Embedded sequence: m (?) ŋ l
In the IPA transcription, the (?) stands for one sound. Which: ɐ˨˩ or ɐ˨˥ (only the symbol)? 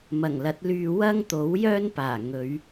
ɐ˨˩